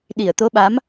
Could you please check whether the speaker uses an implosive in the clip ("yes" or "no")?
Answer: yes